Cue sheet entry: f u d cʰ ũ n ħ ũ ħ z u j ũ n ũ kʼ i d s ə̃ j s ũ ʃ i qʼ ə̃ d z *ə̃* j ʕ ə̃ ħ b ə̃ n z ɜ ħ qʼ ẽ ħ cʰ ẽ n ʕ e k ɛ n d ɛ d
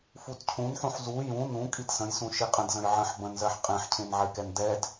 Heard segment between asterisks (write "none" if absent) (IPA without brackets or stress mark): ə̃